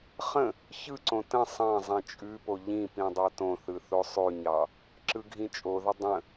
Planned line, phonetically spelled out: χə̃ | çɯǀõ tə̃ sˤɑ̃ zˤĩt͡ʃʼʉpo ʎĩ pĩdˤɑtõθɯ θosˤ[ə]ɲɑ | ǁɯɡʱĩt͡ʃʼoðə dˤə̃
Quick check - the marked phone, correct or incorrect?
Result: incorrect